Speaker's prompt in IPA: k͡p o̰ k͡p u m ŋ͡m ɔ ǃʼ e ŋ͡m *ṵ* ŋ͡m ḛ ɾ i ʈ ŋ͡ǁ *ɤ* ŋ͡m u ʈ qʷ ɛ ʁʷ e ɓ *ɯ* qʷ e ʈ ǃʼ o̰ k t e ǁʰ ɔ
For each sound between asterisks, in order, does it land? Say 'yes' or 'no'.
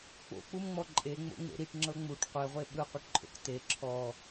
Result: no, yes, yes

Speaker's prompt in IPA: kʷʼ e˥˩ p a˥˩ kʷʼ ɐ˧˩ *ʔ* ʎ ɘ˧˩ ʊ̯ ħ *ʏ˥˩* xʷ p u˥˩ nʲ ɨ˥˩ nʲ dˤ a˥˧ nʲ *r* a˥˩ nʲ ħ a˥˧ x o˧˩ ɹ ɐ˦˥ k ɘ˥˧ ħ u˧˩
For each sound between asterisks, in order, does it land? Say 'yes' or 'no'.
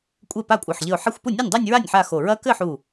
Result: no, no, no

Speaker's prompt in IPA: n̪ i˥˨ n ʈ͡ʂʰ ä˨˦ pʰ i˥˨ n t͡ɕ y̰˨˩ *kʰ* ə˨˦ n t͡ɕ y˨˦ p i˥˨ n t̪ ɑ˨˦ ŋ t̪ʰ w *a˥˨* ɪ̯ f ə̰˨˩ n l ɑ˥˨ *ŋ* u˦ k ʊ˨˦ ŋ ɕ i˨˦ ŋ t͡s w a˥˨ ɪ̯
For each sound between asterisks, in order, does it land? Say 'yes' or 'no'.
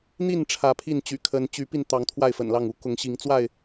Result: yes, yes, yes

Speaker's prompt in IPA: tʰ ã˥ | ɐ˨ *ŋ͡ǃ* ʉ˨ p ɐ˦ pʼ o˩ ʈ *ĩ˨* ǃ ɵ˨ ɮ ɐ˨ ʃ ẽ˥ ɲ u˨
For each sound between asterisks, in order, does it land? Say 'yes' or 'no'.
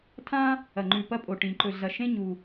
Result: yes, no

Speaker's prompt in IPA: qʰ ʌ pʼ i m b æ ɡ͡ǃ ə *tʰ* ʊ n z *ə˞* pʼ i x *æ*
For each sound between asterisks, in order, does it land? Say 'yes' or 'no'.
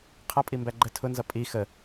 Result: yes, no, no

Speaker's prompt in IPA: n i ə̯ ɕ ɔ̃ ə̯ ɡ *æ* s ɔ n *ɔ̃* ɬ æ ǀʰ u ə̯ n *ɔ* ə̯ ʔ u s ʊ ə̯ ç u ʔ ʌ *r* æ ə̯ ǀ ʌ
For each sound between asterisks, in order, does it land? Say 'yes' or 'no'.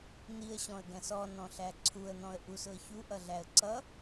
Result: no, yes, no, no

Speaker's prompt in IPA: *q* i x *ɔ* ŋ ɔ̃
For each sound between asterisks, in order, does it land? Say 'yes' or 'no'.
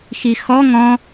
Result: no, yes

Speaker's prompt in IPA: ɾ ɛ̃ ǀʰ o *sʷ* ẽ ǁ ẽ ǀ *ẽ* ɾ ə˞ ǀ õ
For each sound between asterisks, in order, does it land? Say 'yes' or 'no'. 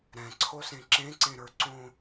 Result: no, yes

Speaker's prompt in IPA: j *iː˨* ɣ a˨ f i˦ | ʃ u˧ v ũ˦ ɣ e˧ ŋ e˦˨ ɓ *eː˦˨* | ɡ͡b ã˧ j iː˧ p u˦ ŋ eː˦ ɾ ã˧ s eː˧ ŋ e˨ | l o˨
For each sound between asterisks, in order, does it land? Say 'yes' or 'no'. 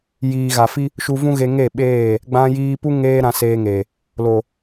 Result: yes, yes

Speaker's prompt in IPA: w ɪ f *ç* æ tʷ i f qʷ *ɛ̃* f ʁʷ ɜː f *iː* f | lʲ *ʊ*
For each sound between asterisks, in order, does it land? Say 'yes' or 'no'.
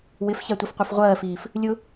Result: yes, no, yes, yes

